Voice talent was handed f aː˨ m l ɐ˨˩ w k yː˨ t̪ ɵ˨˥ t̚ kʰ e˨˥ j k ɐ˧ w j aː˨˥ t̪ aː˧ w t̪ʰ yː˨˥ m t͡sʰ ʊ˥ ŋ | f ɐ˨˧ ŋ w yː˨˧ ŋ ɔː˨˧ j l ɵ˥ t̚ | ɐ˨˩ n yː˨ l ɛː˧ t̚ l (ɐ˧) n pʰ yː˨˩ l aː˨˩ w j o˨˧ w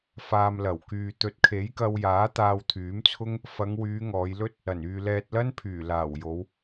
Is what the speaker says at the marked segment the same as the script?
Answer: no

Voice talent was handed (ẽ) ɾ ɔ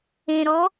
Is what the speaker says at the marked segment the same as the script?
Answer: yes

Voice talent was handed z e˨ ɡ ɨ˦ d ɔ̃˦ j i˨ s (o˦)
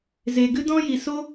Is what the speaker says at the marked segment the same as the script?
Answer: yes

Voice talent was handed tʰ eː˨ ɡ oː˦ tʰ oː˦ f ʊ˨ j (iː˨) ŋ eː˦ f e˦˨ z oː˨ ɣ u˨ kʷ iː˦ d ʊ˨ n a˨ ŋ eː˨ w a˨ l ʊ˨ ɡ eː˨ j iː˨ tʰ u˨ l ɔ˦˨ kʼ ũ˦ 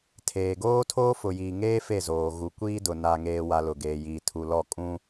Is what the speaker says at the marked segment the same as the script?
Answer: yes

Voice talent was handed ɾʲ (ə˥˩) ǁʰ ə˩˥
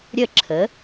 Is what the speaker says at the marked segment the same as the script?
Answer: yes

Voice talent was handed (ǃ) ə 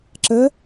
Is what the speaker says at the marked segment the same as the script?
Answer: no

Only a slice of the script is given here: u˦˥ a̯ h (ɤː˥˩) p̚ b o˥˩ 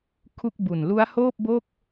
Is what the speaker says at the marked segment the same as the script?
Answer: no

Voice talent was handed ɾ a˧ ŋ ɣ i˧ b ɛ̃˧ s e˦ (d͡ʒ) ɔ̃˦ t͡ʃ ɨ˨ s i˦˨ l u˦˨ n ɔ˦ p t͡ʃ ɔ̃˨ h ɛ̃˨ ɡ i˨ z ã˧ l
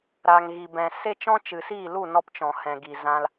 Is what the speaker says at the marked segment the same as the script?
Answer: no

